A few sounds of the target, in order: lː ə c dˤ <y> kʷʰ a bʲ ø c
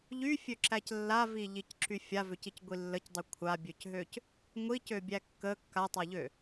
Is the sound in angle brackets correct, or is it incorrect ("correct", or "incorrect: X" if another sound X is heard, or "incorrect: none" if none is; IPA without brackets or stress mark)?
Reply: correct